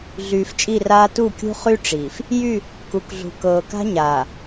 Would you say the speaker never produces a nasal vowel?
yes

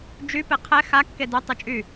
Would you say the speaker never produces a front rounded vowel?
no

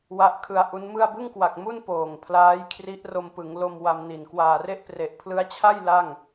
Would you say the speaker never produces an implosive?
yes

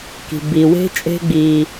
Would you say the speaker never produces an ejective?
no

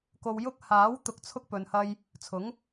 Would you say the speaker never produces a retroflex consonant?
yes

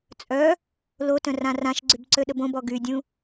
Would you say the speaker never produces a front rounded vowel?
no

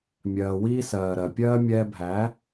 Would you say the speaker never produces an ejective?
yes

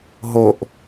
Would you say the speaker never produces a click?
yes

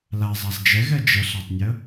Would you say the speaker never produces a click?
yes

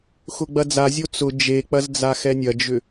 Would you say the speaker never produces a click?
yes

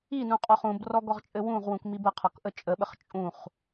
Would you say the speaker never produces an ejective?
no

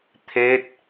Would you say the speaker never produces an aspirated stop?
no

